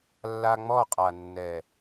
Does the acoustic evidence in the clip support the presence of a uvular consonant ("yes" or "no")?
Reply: yes